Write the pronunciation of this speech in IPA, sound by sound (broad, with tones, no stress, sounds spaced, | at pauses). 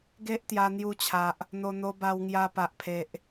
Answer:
ɡ e˦ ʔ t̪ j a˧ n̪ j u˧ t͡ɕʰ a˨ ʔ | n̪ o˧ n̪ o˧ b a˧ w ŋ j a˧ p a˨ ʔ pʰ e˨ ʔ